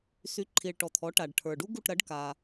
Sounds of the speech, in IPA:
sy˩˥ǃʰi˩ɭ ʈɔ˩t̪ʰɔ˩˥ ʈa˩ɖʈʰə˞˩ɖu˥ ɡu˥˩ʈɾɐ˩˥ɖ ka˩

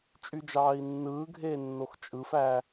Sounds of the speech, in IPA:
t͡ʃʼyd͡ʒɑːi̯nːɯːɡʱeː nːoxt͡ʃʼɯfæː

